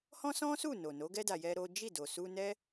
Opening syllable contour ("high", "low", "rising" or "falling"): high